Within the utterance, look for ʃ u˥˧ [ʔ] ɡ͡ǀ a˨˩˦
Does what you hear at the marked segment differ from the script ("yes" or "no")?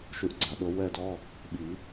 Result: no